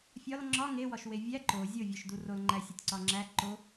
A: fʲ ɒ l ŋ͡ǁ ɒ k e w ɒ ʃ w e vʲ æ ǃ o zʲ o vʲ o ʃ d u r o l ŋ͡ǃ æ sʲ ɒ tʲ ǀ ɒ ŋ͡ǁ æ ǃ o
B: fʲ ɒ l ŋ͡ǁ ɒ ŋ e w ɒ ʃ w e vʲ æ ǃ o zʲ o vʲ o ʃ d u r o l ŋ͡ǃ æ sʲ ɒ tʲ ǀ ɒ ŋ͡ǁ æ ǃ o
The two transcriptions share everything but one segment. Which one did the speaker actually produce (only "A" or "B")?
B